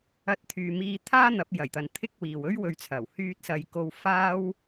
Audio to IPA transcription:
ɐ˧t̚t̪ʰyː˨ miː˧ t̪ʰaː˥n̪ɐ˨˥p̚ jɐ˨˩jt̪ɐ˨n t̪ʰɪ˥k̚wiː˨w ɵ˥ɥwɵ˨˧ɥt͡sʰɐ˨˩w hyː˧t̚sɐ˨jko˧w faː˥w

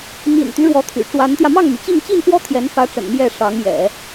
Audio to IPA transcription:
mḭ˨˩nt̪y˦ ɻwɔ˧˥t̪ʰy̰˨˩ʈ͡ʂwa˧˥nt̪jä˧ mɑ˥˩ŋmy˩t͡ɕi˥˧ŋ t͡ɕi˥˩nfwɔ˥ t̪ʰjɛ˧˥nfä˧˥ʈ͡ʂə̰˨˩n mjɛ˥˩ ʂɑ˧˥ŋjɛ̰˨˩˦

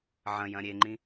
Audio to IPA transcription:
ʕɐ̃jɐ̃ ɾʲeŋ͡ǃĩ

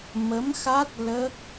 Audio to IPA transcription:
mə˧˥mxa˦˥t̚ lə˦˥k̚

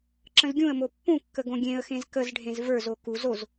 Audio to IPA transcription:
ǁə̃zɡʲũə̯mo pːũkːə ɡõɡʲẽə̯xẽz kəzɖʱẽz və˞zo ku zoz

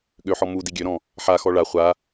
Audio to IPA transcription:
ɠøħɔ mu diɡʲøɾɔ̃ | ħaxɔ ɭa χʷa

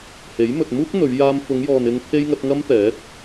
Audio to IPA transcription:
he˨˥j mɵ˨t̚muː˥k̚ n̪ɵ˨˧ɥ jaː˧mfʊ˨˧ŋjɔː˨n ɪ˧ŋ pʰe˥jŋɐ˨˥t̚ ŋɐ˥mt̪ɛː˨˥t̚

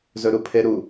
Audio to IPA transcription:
zɵɾupʰeɾu

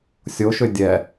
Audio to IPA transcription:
sʲoʃʏ dʲɛ

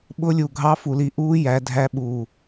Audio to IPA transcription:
ɓʊ˦˥lʲu˧˩ ɡʱɑ˦˥fu˧˩li˨˦ʔuː˦˥ jæ˨˦dʱæ˦˥ɓu˧˩

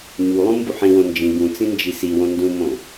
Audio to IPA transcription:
ɲulˠũ mbuħĩwõ nd͡ʒĩ ɡũt͡sĩ nd͡ʒisiwõ ndũmõ

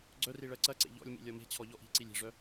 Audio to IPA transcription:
ɡ͡ǀœri ɭɜǀɐǀḛ ʎɔ̰lʲmḭ lʲɔme̤t͡ɕʰɔ ʎɔʔi̤ǀilʲ e̤ʐœ

